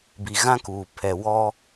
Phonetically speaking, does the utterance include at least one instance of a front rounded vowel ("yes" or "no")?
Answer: no